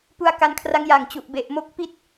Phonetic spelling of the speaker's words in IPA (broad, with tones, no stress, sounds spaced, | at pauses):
p u˦˥ a̯ k a˧ n kʰ r a˦˥ ŋ j a˨˩ ŋ t͡ɕ u˨˩ ʔ b e˨˩ ʔ m o˦˥ k̚ p i˥˩ t̚